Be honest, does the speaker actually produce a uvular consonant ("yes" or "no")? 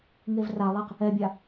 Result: yes